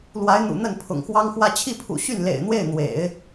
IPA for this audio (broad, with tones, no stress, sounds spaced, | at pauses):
l w a˧˥ ɪ̯ n̪ ṵ˨˩ n̪ ə˥˩ n pʰ ʊ̰˨˩ ŋ x w ɑ˥ ŋ x w ä˥˧ t͡ɕʰ i˥˩ pʰ ṵ˨˩ ɕ y˥˩ n l ḛ˨˩ ɪ̯ n̪ w e˥˩ ɪ̯ n̪ w ḛ˨˩˦ ɪ̯